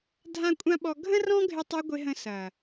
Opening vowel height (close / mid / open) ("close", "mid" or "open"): open